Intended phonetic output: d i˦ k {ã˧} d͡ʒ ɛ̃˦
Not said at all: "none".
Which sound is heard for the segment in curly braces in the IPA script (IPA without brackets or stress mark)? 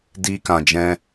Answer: ã˧